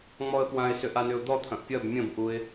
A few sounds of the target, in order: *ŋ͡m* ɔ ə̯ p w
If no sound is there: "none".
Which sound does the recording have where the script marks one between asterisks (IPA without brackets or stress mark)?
ŋ͡m